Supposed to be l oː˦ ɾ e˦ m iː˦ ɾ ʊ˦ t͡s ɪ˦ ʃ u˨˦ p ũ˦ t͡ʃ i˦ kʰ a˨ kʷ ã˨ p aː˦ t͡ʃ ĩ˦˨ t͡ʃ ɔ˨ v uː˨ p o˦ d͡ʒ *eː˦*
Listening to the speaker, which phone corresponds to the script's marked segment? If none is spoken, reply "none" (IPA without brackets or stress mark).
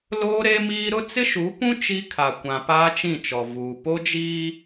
iː˦